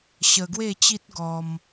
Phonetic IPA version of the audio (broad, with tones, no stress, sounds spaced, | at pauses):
ɕ ə˧ ɡ w e˥˧ t͡ɕ i˦ t̚ ɡ ɔ˧ m